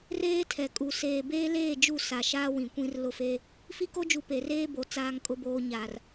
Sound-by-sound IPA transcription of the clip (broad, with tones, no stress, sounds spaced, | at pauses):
r eː˦ tʰ ɛ˨ kʼ u˨ s eː˨ b eː˦ l eː˦˨ d͡ʒ u˦˨ s a˨ ʃ aː˦ w ĩ˨ kʷ ĩ˦ r l ʊ˦ f eː˦ | f i˦ k o˦ d͡ʒ u˨ p e˨ r eː˦ b o˨ t͡s aː˨ ŋ kʼ ʊ˨ b oː˨ ɲ aː˨ r